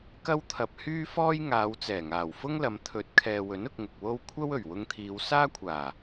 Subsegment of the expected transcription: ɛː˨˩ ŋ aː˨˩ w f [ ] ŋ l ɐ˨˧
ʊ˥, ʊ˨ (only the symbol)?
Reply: ʊ˥